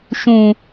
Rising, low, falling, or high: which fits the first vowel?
low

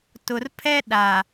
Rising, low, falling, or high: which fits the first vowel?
low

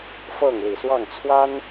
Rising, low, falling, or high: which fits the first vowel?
falling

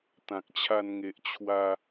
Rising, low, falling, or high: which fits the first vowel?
low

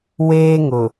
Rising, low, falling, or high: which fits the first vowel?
high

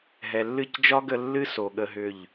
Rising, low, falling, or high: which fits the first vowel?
low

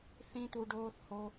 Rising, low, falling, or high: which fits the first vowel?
high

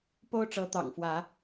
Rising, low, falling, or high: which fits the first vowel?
high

